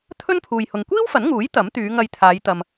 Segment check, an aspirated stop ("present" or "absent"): present